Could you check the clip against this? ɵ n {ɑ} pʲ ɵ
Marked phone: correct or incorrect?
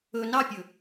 correct